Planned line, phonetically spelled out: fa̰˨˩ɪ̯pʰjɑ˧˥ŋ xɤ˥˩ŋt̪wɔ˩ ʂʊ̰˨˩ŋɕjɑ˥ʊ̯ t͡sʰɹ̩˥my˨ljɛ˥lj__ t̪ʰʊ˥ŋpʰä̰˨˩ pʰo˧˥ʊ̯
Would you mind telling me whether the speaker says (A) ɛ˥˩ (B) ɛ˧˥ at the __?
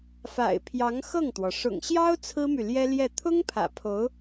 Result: A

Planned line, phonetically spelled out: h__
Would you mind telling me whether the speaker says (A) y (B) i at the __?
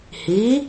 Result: B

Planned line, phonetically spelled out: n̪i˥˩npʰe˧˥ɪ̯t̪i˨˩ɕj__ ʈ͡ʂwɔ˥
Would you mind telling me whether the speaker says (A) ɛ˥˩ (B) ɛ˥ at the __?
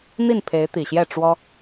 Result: A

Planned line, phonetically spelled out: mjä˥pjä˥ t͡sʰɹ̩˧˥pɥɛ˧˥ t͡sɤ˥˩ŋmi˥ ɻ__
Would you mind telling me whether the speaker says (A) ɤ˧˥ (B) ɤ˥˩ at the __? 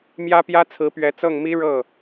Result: B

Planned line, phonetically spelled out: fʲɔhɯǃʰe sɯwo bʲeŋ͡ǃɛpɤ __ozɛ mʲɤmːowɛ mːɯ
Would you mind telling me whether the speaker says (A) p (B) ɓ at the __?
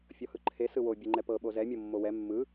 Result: B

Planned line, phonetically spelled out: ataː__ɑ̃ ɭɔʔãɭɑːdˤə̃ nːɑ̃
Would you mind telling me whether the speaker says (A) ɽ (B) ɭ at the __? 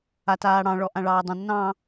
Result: A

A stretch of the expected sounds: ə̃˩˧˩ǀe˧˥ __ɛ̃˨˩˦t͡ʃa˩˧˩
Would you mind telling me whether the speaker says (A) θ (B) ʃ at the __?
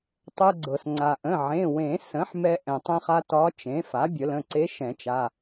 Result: B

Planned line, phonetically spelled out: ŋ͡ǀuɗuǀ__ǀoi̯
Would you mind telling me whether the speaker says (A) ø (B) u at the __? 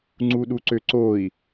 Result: A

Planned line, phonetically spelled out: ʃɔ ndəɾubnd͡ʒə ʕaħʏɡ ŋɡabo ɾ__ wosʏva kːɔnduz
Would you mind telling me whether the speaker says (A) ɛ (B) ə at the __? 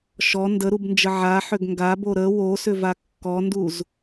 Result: B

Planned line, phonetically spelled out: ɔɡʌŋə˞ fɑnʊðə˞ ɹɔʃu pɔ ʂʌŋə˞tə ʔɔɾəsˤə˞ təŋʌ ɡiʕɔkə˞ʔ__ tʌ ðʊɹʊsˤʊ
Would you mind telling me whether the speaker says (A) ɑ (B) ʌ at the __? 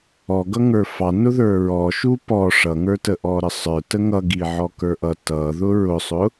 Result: B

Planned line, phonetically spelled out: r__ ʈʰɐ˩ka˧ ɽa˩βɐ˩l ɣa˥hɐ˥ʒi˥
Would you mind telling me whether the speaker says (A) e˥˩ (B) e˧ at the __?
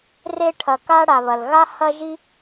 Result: B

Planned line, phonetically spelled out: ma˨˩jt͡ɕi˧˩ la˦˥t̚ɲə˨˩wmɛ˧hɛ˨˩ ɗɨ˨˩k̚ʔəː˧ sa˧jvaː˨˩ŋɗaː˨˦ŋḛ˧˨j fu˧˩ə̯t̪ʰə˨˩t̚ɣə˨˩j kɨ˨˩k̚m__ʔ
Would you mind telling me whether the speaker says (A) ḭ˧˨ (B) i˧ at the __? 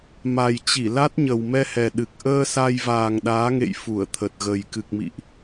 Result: A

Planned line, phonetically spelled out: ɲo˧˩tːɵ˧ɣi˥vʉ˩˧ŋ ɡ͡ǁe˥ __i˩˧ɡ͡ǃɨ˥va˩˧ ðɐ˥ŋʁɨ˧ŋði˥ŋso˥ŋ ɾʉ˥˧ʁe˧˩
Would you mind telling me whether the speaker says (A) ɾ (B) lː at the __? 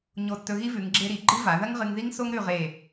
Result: A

